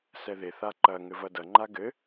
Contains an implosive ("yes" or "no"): no